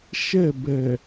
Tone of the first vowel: falling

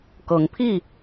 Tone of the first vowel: rising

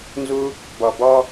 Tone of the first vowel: high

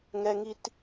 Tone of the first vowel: high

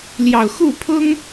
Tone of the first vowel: low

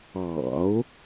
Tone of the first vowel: low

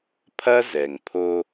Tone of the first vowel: high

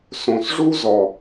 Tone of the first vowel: low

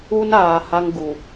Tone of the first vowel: high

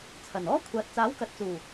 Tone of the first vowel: low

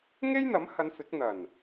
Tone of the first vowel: high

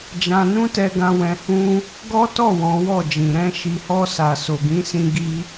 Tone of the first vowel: high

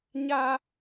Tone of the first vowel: high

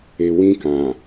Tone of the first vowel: low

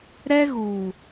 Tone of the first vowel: high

